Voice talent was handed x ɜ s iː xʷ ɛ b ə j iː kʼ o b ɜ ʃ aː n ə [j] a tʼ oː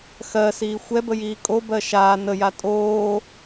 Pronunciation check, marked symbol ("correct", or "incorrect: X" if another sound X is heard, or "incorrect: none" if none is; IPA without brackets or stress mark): correct